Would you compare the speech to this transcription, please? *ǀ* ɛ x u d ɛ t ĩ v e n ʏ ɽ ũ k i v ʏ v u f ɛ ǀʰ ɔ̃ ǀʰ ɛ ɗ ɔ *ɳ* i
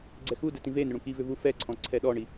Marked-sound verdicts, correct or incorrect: incorrect, correct

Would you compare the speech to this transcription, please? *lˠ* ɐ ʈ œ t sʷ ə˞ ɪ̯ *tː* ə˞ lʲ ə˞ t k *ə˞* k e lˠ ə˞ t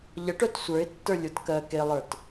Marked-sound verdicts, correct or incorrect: incorrect, correct, incorrect

